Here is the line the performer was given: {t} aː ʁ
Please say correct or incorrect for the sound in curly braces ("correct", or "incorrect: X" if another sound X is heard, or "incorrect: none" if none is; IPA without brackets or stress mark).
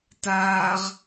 correct